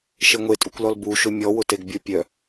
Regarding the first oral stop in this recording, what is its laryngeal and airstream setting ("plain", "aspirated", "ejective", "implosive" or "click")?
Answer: ejective